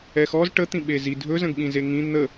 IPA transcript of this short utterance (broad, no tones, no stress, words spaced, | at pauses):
ɛxɔz ʈə t̪ĩɓezi dʱɵ zə̃ɡɓĩzeŋĩ n̪ə